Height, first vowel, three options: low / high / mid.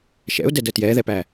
mid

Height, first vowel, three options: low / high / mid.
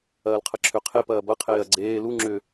low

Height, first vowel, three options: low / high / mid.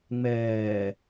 mid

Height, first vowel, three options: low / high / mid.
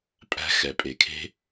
low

